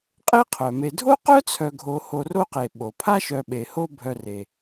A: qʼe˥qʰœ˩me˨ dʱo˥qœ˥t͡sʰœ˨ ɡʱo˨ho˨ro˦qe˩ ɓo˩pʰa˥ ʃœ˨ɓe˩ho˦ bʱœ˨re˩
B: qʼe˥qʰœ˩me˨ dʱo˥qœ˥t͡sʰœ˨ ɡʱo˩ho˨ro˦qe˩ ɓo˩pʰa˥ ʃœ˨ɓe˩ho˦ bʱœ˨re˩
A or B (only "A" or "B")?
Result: A